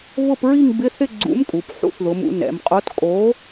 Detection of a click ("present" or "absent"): present